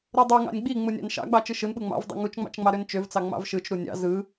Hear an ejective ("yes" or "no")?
no